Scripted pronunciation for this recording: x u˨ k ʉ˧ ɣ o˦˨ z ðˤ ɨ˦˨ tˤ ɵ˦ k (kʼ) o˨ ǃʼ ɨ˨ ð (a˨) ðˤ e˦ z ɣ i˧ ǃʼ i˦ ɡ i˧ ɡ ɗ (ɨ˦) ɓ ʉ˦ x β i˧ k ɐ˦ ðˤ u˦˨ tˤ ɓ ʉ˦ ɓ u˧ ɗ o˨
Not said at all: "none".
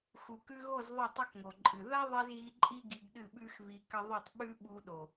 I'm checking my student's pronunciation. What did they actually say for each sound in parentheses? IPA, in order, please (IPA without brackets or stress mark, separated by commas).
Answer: ŋ, a˦, ɨ˦˨